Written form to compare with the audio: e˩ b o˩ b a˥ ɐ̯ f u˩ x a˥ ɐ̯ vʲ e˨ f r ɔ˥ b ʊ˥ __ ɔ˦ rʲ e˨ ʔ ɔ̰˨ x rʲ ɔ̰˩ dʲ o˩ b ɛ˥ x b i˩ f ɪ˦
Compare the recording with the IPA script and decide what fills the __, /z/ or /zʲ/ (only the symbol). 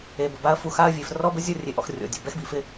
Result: zʲ